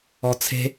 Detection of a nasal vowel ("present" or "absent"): absent